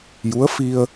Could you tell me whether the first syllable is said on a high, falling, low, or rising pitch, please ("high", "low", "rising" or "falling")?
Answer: rising